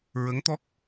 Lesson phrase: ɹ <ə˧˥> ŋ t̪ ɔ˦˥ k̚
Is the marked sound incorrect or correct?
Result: correct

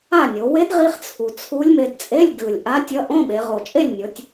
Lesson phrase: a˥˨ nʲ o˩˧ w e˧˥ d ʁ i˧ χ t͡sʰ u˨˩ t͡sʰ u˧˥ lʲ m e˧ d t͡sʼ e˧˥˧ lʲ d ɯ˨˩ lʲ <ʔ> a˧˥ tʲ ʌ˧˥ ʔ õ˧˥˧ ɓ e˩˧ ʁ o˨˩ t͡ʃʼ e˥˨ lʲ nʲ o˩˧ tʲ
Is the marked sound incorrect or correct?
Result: correct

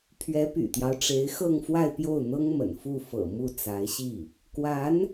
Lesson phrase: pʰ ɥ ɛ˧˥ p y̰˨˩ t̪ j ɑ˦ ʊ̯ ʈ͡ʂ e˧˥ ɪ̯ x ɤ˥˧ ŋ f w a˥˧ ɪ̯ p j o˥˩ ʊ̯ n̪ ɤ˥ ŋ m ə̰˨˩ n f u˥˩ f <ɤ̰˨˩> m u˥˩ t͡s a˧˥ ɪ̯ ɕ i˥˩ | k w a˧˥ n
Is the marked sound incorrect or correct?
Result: correct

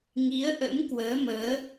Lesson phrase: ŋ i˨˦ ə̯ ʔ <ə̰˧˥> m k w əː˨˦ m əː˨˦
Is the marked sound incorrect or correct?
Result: correct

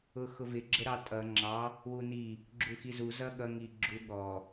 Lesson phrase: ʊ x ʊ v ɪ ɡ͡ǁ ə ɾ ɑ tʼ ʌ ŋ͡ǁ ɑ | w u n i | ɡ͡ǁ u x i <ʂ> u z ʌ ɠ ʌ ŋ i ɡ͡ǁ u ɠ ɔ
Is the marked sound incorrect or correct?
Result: incorrect: z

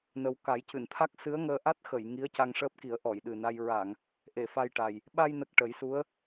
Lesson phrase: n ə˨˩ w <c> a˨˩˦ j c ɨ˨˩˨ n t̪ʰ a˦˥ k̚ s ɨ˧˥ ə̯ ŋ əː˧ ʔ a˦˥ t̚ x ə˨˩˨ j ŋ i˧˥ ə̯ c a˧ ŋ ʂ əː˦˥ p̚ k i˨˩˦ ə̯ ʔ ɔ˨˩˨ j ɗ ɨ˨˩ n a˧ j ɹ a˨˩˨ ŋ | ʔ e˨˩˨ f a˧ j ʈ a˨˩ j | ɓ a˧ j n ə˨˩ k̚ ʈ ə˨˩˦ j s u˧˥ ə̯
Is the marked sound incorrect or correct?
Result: incorrect: k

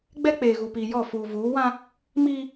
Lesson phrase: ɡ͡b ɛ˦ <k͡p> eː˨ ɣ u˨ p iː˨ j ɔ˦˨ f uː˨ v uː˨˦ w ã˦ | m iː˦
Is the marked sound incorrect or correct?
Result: correct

